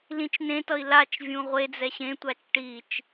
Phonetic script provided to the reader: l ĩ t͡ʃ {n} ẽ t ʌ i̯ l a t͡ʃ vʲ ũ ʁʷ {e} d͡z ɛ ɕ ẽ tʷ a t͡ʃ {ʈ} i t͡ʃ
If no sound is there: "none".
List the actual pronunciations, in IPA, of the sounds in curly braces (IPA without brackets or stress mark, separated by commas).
n, e, ʈ